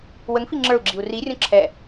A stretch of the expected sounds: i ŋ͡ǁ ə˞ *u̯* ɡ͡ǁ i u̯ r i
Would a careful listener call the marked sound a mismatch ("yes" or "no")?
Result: no